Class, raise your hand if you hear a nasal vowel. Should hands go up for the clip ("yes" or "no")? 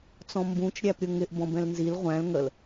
yes